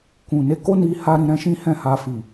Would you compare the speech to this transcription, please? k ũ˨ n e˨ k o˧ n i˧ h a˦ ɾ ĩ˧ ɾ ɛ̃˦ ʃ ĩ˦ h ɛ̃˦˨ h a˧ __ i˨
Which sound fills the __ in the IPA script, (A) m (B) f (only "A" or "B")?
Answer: B